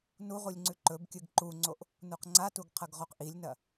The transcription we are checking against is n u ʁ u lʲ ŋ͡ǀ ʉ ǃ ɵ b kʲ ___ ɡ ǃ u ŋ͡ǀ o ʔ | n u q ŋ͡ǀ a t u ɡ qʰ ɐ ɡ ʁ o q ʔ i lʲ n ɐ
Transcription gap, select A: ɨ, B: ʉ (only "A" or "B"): A